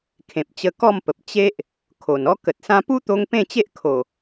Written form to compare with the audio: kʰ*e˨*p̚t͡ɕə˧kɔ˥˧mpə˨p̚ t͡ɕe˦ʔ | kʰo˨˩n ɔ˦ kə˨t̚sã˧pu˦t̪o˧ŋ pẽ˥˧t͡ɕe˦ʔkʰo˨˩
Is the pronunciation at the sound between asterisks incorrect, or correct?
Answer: incorrect